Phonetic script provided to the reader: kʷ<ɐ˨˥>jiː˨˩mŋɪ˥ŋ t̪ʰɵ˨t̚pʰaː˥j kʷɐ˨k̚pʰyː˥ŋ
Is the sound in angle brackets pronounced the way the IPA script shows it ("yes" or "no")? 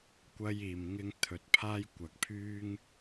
no